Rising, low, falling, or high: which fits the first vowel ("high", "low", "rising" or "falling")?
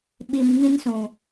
low